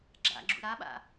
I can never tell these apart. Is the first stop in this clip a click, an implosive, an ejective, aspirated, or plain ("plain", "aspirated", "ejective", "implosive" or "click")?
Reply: click